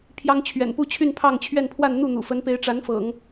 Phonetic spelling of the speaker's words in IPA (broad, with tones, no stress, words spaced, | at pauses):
pʰjɑ˥ŋt͡ɕʰɥɛ̰˨˩npu˥t͡ɕʰy˥˧n pʰɑ˥˧ŋt͡ɕʰɥɛ˥˧npʰwa˥˧n n̪u˥˩n̪ṵ˨˩fə˧˥npe˧˥ɪ̯ ʈ͡ʂa˧˥nfɤ̰˨˩˦ŋ